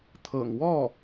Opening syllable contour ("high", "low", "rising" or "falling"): low